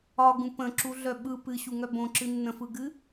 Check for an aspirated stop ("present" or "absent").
absent